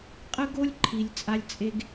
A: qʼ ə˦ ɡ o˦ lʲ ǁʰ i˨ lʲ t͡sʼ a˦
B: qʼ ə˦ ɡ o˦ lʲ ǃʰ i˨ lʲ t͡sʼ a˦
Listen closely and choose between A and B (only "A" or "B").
B